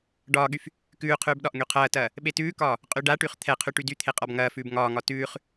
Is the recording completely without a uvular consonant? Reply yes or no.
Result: no